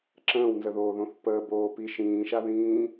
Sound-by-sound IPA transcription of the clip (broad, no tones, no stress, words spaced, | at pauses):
ǁə̃ːwnzəðoːðõθ pəːboːpi ʃĩːʃaðĩː